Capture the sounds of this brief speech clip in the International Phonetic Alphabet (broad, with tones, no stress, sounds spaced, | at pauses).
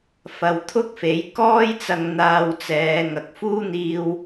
f ɐ˧ w t̪ʰ ʊ˥ k̚ f e˨˥ j k ɔː˥ j t͡s ɐ˧ ŋ n̪ aː˧ w t͡s ɛː˨˧ ŋ ɐ˨ k̚ f uː˥ n̪ iː˥ w